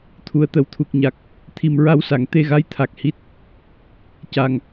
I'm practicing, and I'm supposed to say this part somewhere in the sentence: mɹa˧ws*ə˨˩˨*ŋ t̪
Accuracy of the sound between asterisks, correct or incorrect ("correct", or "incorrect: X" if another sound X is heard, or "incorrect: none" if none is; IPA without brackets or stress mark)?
incorrect: a˨˩˨